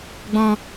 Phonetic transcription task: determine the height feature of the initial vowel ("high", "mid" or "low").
mid